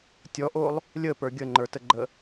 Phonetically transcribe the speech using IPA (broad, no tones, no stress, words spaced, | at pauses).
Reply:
tʲɔʔolˠ | lʲəpə˞ ɡʲəŋ͡ǃə˞təɡ͡ǃə